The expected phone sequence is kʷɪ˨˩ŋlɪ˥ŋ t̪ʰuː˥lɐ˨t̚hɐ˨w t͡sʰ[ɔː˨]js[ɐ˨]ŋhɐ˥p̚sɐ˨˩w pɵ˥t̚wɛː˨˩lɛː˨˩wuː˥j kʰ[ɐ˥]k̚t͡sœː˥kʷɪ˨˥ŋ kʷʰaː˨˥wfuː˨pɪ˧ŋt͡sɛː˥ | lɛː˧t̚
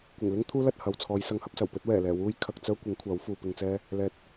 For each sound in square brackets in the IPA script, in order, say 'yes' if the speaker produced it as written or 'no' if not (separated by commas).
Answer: no, no, no